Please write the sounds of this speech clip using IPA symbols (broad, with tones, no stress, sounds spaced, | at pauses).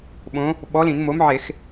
ɓ õ˨˥ | ɓ ɔ˨˥ l ĩ˧˩˧ n m o˨˥ m ʕ e˧˩˧ x